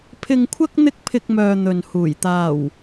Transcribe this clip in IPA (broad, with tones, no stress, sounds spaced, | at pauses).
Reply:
pʰ ɪ˧ ŋ kʷʰ ɐ˥ k̚ n̪ ɪ˥ k̚ pʰ ɪ˧ k̚ m œː˨ n̪ ɵ˨ n h uː˨˩ j t̪ aː˨˩ w